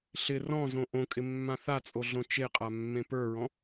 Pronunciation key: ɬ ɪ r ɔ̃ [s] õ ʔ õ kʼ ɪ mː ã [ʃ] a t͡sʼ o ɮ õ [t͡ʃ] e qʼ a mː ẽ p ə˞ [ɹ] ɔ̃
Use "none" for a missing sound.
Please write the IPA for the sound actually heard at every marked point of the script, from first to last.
z, θ, t͡ʃ, ɹ

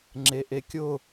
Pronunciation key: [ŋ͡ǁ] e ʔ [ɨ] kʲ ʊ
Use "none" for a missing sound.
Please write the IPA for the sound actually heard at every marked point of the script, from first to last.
ŋ͡ǁ, e

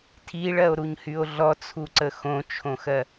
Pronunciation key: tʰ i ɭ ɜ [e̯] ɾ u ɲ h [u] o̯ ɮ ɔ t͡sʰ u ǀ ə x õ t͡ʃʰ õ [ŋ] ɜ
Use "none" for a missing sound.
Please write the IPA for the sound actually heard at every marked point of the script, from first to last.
o̯, y, x

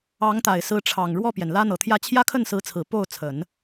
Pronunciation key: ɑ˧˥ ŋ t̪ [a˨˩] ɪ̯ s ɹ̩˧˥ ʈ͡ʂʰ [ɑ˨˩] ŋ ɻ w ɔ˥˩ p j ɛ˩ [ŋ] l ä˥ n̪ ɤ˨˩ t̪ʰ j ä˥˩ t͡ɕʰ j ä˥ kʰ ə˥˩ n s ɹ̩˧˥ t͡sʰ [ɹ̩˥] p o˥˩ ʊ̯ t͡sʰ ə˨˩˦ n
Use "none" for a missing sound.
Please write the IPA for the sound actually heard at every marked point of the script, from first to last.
a˨˩, ɑ˨˩, n, ɹ̩˨˩

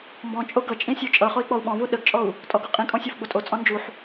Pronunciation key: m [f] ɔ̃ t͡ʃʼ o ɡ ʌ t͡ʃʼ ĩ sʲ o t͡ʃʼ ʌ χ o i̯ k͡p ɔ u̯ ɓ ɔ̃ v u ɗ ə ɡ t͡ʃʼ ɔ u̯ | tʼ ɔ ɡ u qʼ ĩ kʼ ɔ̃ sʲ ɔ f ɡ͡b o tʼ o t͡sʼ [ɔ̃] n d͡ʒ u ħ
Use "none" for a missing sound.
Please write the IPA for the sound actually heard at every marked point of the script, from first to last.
b, ɔ̃

